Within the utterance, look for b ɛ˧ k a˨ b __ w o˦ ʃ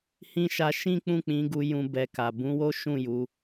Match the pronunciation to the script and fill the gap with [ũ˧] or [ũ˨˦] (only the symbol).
ũ˨˦